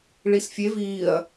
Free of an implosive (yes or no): yes